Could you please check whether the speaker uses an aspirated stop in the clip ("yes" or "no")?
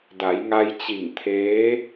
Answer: yes